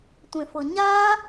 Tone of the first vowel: low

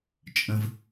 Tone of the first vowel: low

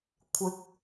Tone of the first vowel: rising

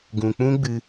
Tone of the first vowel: low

